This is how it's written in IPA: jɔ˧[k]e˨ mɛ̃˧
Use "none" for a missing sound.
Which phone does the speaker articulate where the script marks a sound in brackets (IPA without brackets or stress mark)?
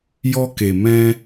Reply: k